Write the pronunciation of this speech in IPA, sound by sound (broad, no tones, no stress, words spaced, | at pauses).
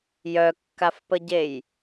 jœkːafpəɟej